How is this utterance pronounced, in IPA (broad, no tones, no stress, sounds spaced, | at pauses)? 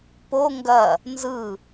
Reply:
p o ŋ ɡ ɐ | n z ɯ